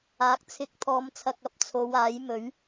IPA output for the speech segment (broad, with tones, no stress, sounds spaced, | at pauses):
aː˨˥ k̚ t͡sʰ ɪ˧ k̚ t̪ʰ ɔː˨˧ m t͡sʰ ɐ˨ k̚ ɐ˧ p̚ t͡sʰ o˨˧ w aː˨˥ j m ɵ˨˥ ɥ